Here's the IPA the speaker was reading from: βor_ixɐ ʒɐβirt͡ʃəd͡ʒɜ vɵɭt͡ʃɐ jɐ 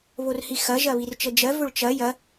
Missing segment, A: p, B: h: B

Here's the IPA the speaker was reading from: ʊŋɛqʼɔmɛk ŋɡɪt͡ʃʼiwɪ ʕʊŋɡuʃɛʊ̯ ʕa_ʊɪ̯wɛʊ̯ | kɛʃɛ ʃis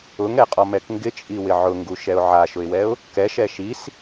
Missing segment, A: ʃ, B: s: A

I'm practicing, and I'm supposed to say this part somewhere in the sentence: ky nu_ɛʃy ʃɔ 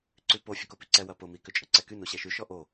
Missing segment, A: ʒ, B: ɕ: B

